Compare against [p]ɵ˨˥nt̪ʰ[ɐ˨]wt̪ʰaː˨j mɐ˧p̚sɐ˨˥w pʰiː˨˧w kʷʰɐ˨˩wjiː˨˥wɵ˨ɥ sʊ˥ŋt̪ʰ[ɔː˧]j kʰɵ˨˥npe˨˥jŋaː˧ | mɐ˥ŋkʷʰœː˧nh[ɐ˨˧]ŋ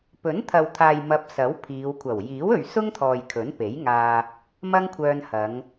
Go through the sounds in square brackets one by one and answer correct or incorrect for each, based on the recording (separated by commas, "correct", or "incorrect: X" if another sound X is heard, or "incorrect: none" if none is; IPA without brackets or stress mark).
correct, correct, incorrect: ɔː˨, correct